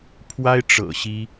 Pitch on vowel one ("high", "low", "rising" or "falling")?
high